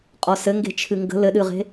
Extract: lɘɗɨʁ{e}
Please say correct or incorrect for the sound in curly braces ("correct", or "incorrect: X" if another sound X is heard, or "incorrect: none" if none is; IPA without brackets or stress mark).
incorrect: e̤